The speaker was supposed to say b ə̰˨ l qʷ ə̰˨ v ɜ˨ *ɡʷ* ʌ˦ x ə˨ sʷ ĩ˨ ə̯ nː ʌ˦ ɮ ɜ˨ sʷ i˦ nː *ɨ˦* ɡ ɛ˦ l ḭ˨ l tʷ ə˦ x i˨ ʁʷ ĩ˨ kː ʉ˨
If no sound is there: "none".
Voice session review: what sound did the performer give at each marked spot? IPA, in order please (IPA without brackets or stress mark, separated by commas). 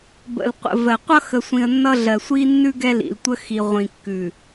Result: qʷ, ʉ˦